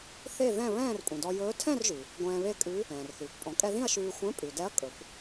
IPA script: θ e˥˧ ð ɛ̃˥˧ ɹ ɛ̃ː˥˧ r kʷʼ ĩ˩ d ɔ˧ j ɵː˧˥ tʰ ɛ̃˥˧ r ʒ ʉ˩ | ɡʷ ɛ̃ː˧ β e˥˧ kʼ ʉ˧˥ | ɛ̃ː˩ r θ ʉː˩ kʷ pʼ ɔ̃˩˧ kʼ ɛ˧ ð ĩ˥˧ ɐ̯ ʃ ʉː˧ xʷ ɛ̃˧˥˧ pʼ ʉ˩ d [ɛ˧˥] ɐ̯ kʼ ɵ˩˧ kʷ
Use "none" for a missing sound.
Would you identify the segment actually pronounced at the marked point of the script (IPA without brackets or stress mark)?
ɛ˧˥